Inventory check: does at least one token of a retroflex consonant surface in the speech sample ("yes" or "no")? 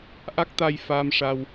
yes